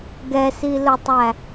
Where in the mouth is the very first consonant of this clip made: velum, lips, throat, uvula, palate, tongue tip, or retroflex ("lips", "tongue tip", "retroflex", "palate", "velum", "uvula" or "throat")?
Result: velum